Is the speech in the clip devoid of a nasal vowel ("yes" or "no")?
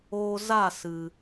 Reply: yes